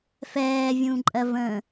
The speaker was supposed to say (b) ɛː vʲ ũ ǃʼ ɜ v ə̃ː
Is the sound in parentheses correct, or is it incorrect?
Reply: incorrect